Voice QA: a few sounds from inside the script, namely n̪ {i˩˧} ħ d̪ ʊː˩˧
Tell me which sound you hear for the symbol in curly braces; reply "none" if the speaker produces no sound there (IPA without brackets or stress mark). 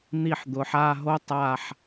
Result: i˧˩